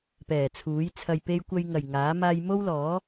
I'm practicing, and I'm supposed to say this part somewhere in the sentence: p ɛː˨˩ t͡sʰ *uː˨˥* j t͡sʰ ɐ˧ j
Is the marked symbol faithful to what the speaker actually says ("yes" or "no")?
yes